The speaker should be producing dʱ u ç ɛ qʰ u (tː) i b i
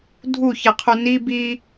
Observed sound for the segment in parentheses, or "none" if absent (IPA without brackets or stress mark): n